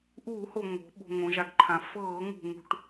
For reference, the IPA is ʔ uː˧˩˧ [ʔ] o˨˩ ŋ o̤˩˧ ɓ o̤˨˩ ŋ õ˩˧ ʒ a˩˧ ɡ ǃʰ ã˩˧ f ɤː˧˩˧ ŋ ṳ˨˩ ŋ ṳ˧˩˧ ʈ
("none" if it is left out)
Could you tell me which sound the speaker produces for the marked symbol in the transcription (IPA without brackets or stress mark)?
h